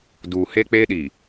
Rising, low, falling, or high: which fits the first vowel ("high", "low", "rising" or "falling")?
low